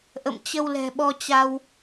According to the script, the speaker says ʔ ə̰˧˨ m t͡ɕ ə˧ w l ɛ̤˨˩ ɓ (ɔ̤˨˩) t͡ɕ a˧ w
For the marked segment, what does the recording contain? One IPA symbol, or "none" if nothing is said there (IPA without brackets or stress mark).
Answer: ɔ˧